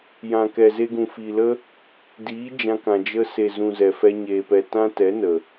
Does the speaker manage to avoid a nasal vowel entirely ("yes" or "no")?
no